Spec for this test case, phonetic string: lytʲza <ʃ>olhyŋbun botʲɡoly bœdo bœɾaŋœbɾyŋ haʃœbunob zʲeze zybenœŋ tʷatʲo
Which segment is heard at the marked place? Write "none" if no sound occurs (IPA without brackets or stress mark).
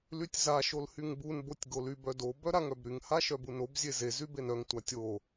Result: ʃ